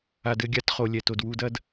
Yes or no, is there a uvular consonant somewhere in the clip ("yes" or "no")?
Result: yes